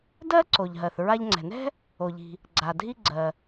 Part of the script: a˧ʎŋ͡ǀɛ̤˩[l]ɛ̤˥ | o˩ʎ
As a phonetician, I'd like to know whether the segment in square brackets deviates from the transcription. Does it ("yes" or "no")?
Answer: yes